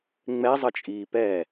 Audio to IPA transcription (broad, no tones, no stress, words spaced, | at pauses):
ŋ͡mɛzˤət͡ʃʼiː pɛ